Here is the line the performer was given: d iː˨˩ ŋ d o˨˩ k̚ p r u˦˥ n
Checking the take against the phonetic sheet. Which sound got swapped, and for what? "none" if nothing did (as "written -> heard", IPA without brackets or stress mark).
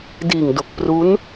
none